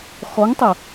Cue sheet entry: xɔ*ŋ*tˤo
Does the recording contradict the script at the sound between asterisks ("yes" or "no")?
no